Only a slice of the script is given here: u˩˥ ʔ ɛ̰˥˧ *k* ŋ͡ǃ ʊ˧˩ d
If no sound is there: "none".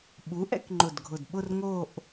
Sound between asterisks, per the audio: k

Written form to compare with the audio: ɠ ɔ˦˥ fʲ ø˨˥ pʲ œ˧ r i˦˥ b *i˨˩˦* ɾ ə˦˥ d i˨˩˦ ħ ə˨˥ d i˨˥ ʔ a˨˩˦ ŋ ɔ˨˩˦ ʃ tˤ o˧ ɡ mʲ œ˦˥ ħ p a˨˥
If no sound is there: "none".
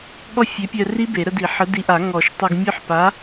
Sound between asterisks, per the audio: e˨˩˦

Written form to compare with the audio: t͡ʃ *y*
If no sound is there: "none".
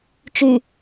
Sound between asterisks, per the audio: y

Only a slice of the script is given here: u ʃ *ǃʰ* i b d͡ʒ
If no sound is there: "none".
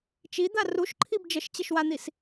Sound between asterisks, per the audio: ǃʰ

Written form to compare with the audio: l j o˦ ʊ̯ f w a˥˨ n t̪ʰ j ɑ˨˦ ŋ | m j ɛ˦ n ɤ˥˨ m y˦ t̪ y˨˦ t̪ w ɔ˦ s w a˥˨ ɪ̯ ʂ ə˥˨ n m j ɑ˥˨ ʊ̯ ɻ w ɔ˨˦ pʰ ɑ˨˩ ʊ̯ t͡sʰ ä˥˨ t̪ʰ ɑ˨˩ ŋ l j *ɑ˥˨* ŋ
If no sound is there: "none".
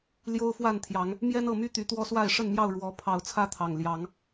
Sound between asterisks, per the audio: ɑ˨˦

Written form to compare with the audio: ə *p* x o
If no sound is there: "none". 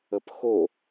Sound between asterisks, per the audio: p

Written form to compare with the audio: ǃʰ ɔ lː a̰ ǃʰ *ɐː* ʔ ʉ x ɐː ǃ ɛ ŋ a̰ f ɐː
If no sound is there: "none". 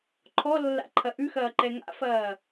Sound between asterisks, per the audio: ɐ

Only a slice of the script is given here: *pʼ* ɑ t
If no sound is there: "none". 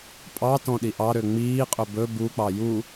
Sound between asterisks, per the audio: pʼ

